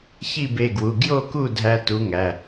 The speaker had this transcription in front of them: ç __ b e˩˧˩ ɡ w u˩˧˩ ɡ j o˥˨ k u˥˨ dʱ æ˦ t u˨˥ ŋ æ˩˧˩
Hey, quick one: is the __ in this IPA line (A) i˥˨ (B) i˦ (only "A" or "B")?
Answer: A